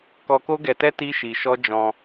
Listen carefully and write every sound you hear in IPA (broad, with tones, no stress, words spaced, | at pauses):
kɔ˧ko˦ɡɛ˧tɛ˦ ti˦ʃi˧ʃɔ˦ d͡ʒɔ̃˧